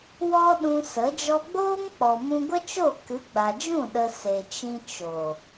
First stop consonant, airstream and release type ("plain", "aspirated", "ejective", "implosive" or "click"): implosive